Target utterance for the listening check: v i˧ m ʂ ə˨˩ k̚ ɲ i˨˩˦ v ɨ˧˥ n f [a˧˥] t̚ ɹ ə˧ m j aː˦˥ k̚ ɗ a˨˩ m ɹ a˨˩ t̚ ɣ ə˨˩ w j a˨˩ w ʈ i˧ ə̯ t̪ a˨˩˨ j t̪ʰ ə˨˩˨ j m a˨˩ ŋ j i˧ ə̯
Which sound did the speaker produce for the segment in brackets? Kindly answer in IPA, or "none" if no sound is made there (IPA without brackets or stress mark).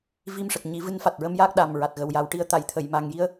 a˨˩